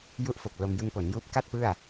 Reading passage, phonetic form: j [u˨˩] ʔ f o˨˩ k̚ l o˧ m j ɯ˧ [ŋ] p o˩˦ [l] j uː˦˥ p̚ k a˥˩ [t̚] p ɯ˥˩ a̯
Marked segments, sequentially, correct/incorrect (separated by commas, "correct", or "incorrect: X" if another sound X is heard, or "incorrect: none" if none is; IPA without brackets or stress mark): incorrect: u˦˥, correct, incorrect: n, correct